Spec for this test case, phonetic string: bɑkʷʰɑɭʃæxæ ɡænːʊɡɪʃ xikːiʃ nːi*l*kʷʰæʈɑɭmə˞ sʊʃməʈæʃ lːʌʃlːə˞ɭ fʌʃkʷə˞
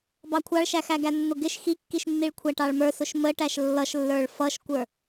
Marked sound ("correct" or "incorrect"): incorrect